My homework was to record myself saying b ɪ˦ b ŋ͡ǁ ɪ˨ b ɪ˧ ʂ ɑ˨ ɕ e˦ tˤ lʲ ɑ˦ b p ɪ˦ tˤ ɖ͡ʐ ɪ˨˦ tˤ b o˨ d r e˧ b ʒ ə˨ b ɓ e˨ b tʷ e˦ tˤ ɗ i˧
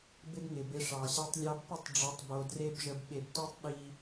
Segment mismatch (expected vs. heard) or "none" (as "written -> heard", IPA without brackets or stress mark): ŋ͡ǁ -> ŋ